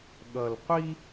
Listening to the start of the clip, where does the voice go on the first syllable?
low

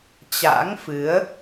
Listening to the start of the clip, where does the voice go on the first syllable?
rising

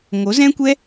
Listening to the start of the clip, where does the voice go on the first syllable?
rising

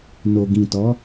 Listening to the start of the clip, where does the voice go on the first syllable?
low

